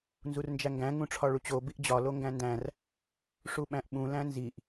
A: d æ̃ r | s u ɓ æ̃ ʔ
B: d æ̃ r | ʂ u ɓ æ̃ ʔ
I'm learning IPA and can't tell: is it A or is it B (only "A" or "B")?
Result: B